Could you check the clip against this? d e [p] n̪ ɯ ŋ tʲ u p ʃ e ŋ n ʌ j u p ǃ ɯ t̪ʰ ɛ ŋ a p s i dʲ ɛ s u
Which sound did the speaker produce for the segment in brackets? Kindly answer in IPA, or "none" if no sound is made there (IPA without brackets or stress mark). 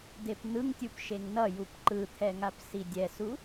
p